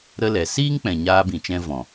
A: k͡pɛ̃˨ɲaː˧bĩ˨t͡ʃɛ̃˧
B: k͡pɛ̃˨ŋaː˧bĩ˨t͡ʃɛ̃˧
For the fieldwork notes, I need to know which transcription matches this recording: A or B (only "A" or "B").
A